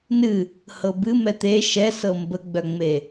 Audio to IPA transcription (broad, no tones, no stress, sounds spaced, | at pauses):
n ɨ | h ɤ b ɨ m ɛ t̪ e ʃ ɛ s ɤ m b ə ɡ͡b œ ŋ͡m e